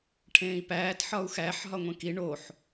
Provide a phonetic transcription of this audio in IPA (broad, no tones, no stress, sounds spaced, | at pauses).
ʈʰ ẽː i̯ p æː t ħ ɒ u̯ x æ ħ ɦ ɒ ŋʷ ẽ k i ɳ o ħ